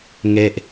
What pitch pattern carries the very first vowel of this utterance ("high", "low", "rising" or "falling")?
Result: low